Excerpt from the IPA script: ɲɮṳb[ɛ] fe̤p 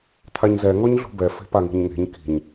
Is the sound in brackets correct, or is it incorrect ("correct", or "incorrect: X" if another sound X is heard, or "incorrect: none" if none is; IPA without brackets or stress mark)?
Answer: correct